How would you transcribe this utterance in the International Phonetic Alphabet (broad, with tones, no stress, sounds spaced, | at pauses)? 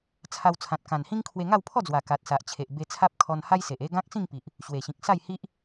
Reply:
t͡sʰ a˧ w t͡sʰ ã˨ t̚ k ã˨˩ n h ĩ˦ ŋ kʰ w e˧ ŋ a˥˧ w pʰ ɔ˥˧ d͡z w a˨˩ k a˨ t̚ s a˨ ʔ t͡ɕʰ e˨ ʔ b e˧ t͡sʰ a˦ p̚ kʰ ɔ˧ n h a˦ j s e˨ ʔ e˦ ɡ ã˦ k̚ s ĩ˥˧ ŋ p i˨ ʔ | ɕ w e˨˩ ɕ ĩ˨ k̚ s a˥˧ j h i˦ ʔ